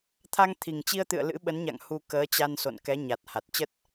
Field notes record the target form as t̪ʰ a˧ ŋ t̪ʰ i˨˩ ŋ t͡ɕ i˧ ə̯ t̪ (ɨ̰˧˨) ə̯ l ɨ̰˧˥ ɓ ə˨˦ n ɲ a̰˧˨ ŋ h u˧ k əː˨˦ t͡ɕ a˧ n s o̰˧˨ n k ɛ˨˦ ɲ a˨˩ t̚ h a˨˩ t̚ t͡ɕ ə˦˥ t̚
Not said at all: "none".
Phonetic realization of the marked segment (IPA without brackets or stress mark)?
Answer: ɨ̰˧˨